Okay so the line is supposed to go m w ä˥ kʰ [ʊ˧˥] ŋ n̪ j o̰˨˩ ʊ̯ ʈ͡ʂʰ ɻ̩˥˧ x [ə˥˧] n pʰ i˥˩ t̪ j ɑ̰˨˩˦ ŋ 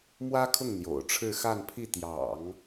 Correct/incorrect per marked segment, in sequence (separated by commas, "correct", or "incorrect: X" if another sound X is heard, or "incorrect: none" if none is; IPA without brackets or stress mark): incorrect: ʊ˥˩, incorrect: a˥˧